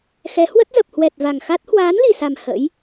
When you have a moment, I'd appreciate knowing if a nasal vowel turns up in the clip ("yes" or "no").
no